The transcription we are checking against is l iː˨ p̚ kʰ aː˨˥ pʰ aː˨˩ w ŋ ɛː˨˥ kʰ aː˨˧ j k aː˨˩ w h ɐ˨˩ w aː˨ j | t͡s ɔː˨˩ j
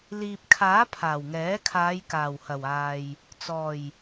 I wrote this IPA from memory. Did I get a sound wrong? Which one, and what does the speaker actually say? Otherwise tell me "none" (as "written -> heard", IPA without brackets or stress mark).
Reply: none